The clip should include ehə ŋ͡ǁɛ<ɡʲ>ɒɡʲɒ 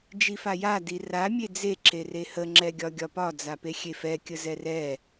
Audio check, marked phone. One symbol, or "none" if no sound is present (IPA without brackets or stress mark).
ɡʲ